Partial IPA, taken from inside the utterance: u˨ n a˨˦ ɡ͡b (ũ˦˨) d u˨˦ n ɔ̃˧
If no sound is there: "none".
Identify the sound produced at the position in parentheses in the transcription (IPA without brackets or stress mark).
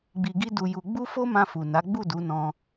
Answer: u˦˨